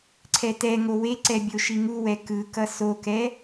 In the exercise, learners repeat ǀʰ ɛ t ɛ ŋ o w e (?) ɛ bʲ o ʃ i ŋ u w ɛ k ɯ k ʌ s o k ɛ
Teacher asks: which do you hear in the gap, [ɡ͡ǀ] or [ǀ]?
ǀ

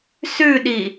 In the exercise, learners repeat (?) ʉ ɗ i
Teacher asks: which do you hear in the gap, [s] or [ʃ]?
s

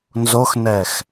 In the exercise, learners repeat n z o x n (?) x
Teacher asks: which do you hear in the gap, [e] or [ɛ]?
ɛ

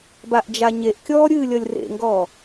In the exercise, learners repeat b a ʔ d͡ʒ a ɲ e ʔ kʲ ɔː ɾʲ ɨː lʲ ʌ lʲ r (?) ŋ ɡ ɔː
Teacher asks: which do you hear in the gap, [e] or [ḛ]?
ḛ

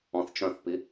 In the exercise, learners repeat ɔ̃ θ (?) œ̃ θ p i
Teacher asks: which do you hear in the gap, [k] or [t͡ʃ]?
t͡ʃ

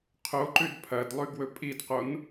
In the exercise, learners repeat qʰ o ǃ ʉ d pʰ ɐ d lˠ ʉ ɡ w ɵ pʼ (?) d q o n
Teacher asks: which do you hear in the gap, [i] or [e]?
i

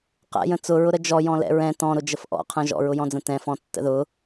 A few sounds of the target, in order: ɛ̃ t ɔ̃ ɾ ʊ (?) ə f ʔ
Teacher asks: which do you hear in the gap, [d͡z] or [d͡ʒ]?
d͡ʒ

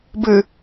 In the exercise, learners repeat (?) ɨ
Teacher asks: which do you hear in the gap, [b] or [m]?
b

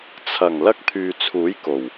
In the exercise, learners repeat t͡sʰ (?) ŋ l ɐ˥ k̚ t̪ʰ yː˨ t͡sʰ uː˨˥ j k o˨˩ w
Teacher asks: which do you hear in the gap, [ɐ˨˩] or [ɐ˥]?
ɐ˨˩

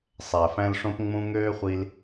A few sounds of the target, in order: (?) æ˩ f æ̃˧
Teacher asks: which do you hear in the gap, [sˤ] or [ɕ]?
sˤ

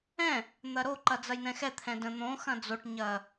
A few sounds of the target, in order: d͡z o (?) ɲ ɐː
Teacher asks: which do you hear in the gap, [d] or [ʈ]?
ʈ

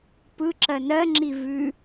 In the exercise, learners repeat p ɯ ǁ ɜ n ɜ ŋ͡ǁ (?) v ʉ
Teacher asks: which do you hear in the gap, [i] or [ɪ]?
i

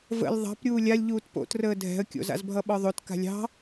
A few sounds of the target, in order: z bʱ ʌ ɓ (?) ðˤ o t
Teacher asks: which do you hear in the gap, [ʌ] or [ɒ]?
ɒ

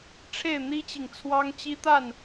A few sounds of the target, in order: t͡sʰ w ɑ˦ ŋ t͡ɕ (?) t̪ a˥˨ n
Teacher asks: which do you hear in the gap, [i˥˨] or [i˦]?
i˦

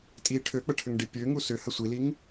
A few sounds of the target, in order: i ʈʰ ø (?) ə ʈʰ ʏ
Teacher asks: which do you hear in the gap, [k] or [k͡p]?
k͡p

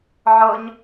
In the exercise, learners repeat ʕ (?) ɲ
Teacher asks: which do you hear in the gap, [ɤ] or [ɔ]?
ɤ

